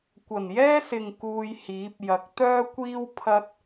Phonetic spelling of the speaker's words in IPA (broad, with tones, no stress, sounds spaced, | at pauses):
kʷ ɐ˨˩ n j ɛː˥ s ɪ˨ ŋ k uː˧ j h iː˨˥ p̚ j ɐ˨ k̚ t̪ œː˥ kʷ iː˥ w pʰ ɐ˥ t̚